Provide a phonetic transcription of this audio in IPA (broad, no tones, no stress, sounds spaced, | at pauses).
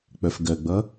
k͡p œ f ɡ ɜ ɡ͡b ʌ